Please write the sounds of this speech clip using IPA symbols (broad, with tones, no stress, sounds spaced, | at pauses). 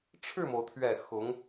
ʈ͡ʂʰ ɻ̩˥˩ m o˩ ʊ̯ t̪ʰ ɥ ɛ˨˩ x ʊ˧˥ ŋ